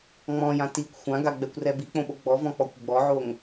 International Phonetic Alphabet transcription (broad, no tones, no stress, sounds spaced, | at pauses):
ŋ͡m ɔ̃ j ã t i kʷ xʷ ã ɡ a ɡ͡b ɛ kʷ r ɛ b i k͡p õ ɓ o ɡ͡b ɔ v ɔ̃ k͡p ɔ kʷ ɡ͡b ɔ ʕ o ŋ